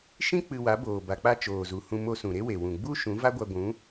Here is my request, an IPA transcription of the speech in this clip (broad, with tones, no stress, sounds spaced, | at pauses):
ʃ ĩ˦ k͡p ɨ˧ w a˨˦ b oː˨ b a˨ k͡p a˧ t͡ʃ oː˨ z u˨ h ũ˧ m o˧ s ũ˨ ɾ e˦ w e˨ w ũ˨ ɡ͡b u˦ ʃ ũ˨˦ v a˦ ɡʷ a˧ ɡʷ ũ˨˦